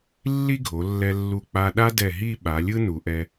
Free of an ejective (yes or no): yes